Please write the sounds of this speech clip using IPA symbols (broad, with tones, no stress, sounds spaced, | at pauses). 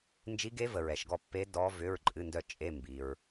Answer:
n d͡ʒ i˦˥ ɡ e˦˥ v ə˨ ɹ ɛ˨ ʃ ɡ ɔ˥˨ pː e˦˥ d ɔ˦˥ v ʏ˧˥˧ ɹ ǃʼ ɨ˧˥˧ n d œ˥˨ t͡ʃʼ e˧˥˧ m b i˨ ɹ